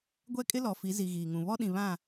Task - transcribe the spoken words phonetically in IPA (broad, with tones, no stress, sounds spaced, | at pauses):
ɡʷ ɛ˦ kʼ ɪ˦ l ɔ˨ f i˨˦ z i˨ ɣ iː˨ ŋ ũ˨ β ɔ˦ ɗ ĩ˨ β ã˦˨